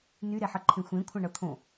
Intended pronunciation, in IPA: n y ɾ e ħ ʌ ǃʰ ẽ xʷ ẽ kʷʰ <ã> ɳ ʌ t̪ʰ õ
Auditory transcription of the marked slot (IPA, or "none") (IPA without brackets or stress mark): ã